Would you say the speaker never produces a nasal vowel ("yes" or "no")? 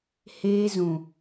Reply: no